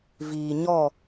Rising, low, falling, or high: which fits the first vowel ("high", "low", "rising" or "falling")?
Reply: low